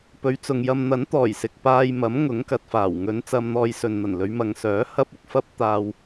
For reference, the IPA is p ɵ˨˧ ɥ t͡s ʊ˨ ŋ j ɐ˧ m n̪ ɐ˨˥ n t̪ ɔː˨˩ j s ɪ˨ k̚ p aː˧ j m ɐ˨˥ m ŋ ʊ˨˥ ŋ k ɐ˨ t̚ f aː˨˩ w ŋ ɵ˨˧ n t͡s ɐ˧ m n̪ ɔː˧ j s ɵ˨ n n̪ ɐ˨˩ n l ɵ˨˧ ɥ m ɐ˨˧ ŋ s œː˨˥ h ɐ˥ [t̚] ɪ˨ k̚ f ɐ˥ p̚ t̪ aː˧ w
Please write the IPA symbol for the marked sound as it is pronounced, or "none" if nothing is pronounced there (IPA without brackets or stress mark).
p̚